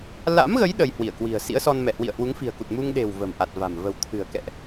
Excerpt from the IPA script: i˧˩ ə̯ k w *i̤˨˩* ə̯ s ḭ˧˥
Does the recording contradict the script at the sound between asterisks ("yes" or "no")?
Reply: no